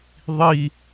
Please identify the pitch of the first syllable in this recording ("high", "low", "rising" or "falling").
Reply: falling